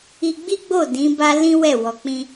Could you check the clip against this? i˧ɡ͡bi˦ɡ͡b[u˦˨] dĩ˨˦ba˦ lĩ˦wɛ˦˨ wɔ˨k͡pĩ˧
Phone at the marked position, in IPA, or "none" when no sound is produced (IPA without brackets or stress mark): o˦˨